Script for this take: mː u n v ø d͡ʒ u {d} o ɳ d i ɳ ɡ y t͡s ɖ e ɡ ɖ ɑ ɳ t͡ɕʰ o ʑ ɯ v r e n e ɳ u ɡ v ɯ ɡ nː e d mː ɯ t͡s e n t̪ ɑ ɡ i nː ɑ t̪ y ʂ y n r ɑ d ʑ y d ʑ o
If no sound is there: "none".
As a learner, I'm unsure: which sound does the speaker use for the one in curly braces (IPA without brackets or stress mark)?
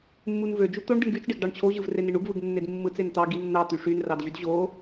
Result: t̪